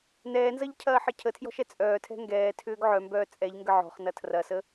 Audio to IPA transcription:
n ɛː n z ɐ ʎ cʰ ɐː ħ ə cʰ ə tʰ j ɔ̤ ʃ ɛ t͡sʼ œː tʰ ɛ̤ ŋ ɡ ɛː tʰ ʏː ɡ ʕ œ m b œː t͡sʼ ɛ ʎ ŋ ɡ ə ʕ ɔ̤ χ n ɐ tʰ r ɐ s ə

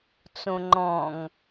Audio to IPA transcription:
t͡s õ ŋ͡ǃ ɔ̃ ŋ

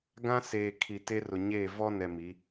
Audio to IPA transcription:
ɡ ã˦ s eː˨ kʰ i˨ t e˦ r ʊ˨ ɲ eː˦˨ v ɔ˦ n ɛ˨ m i˨˦

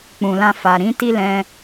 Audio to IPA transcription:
k͡p ũ˨ l ã˧ f a˨ ɾ ĩ˨˦ t i˦ l ɛ̃˧

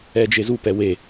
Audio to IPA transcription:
ɛ d͡ʒ e z u p ɛ w e

